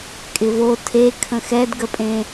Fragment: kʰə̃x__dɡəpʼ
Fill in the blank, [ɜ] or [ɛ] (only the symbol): ɛ